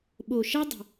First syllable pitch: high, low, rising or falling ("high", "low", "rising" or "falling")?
low